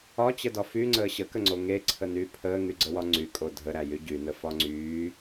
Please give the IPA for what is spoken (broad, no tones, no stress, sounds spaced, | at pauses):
ɒ t͡ɕ ə d ɒ f y ŋ͡ǀ əː ɕ ə k ə ŋ͡ǀ o ŋ e ǀʰ ə n yː pʰ əː ŋ y ɡ͡ǀ ə w ɒ ŋ͡ǀ y kʼ o dʱ ə ɾ æ j y ɟ y n ə f ɒ ŋ͡ǀ yː